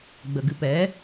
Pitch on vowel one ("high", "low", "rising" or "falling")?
low